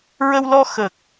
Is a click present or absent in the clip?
absent